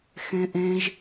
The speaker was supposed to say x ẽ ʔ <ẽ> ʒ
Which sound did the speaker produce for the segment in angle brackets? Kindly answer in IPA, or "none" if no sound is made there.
ẽ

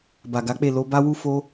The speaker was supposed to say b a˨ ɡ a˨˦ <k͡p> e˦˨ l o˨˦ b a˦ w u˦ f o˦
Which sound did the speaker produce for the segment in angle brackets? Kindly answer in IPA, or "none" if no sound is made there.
k͡p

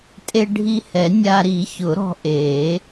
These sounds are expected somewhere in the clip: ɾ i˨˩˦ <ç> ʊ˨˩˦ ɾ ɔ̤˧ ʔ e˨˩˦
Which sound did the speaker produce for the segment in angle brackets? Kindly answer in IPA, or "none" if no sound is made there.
ç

